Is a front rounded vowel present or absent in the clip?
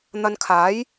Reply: absent